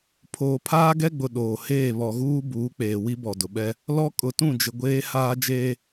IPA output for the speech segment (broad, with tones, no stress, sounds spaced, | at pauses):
pʰ oː˨ pʰ aː˦ ɡ ɛ˦ ɡ͡b ʊ˨ ɗ oː˨ h eː˦˨ β ɔ˨ ɣ uː˦ b uː˨˦ k͡p eː˨ w i˦ b ɔ˨ d ʊ˨ ɓ ɛ˦ | l ɔ˦ kʼ ʊ˨ t ũ˦˨ d͡ʒ ɪ˨ ɡʷ eː˦ h aː˦ d͡ʒ eː˦